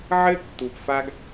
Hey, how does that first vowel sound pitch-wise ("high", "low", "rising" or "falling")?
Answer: high